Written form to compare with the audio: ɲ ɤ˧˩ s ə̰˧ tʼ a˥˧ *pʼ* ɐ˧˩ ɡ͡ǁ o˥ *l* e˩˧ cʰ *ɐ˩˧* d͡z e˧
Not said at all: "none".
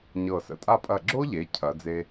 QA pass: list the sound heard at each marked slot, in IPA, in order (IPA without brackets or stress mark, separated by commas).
pʼ, ʎ, ɐ˩˧